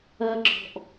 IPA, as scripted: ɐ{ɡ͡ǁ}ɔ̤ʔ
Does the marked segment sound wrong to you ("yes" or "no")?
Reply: no